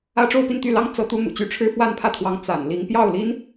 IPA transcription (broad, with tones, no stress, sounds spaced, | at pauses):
ä˥ ʈ͡ʂ o˥˧ ʊ̯ p i˥˧ n t̪ y˥˩ l ɑ˥ ŋ t͡s ɤ˧˥ t̪ u˧˥ n̪ ṵ˨˩ t͡ɕ y˧˥ ʈ͡ʂʰ ɻ̩˥ f w a˥˧ n pʰ ä˥˩ t̪ʰ w ɑ˧˥ ŋ t͡s a̰˨˩ n l i˧˥ ŋ p j ɑ˥˩ ʊ̯ l i˧˥ n